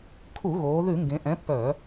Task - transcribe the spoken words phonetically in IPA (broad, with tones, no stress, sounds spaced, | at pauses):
kʰ u˧˩˧ ɣ oː˩˧ ð ʉ˧˩˧ ŋ ɡ ẽ˩˧ ʔ ɛ̃˨˥ pː œ˧˩˧